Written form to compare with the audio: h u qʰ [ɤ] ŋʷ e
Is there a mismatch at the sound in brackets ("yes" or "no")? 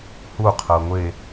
no